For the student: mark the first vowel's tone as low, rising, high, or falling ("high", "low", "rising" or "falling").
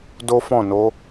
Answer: high